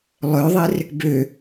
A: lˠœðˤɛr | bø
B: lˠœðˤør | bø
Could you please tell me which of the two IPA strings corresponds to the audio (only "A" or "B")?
A